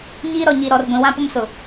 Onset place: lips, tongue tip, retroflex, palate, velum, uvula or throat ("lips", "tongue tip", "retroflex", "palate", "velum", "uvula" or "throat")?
palate